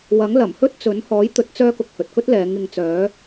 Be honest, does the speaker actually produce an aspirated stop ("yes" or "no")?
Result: no